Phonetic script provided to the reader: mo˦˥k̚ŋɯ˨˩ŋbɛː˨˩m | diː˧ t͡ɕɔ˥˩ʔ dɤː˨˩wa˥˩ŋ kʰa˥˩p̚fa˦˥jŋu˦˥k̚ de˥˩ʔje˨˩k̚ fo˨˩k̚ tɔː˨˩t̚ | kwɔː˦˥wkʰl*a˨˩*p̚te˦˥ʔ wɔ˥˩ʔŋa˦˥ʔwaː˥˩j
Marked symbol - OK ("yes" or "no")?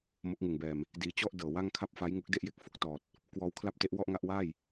no